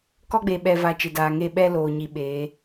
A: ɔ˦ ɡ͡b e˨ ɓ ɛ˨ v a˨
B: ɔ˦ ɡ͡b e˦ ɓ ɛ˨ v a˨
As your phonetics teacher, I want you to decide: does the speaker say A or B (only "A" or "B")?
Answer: A